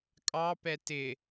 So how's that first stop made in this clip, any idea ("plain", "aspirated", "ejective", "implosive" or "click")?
ejective